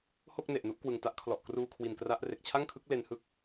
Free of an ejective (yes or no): yes